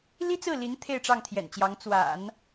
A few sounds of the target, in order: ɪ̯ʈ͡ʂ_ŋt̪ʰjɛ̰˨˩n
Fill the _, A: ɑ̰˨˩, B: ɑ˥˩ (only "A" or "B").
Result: B